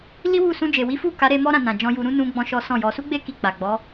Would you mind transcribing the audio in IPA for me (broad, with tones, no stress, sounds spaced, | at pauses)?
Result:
l i˦ w u˦˨ s ũ˧ d͡ʒ e˨ w i˨˦ f u˦˨ k a˨˦ ɾ e˧ m ɔ˦ ɾ ã˧ n ã˨ d͡ʒ ɔ̃˧ j u˧ ɾ ũ˦ n ũ˦ ɡ͡b ɔ̃˦ ʃ ɔ˦ s ɔ̃˦˨ j ɔ˧ s u˦ ɡ͡b e˦ k i˧ k͡p a˨ ɡ͡b ɔ˨˦